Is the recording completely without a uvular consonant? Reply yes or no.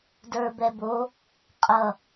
no